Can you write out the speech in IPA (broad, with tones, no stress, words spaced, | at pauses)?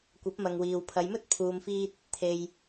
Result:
kʷɐ˨˥p̚mɐ˨ŋwiː˨w pʰɐ˨˧jmɵ˥t̚pʰuː˨mfiː˧t̚ | t̪ʰe˨j